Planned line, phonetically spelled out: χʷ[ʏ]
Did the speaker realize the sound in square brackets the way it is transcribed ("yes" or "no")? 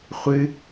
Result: no